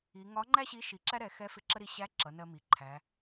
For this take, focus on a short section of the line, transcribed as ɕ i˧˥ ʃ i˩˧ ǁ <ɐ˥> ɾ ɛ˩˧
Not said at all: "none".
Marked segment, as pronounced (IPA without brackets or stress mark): æ˥